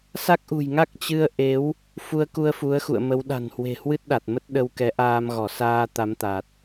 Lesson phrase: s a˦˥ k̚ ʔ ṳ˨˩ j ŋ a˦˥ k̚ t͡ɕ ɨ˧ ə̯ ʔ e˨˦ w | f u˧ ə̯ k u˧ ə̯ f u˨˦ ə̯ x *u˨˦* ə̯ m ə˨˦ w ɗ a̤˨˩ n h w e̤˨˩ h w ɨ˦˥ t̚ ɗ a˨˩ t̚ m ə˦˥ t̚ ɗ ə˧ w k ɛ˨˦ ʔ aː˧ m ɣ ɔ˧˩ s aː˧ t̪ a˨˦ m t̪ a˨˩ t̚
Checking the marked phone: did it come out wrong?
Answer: yes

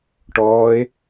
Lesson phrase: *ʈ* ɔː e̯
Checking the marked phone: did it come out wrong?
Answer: no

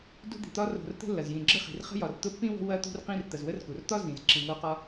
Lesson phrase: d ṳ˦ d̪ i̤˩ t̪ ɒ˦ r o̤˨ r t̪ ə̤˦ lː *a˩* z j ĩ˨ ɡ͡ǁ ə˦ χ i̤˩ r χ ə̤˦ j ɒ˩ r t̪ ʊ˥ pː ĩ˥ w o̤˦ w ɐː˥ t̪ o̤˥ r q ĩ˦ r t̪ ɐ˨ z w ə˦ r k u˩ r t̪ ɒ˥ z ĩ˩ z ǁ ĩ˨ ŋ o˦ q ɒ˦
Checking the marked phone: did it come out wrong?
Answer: yes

